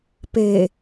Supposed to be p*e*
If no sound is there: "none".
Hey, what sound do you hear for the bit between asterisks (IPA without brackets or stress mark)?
e